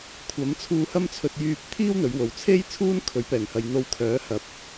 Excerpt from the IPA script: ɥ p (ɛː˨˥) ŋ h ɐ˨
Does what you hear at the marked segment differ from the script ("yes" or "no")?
yes